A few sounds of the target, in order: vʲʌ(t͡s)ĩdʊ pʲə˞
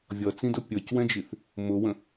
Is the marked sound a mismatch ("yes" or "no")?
no